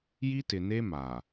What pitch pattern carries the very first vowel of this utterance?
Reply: high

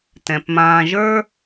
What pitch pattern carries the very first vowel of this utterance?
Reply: low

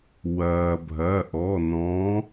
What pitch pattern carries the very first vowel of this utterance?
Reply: low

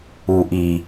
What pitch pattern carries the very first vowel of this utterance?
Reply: low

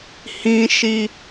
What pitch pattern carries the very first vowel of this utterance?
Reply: high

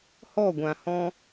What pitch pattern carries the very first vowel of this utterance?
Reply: falling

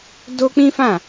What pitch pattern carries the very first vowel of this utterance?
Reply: high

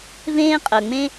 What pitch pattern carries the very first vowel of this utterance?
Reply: high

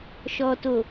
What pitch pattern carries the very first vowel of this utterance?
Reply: low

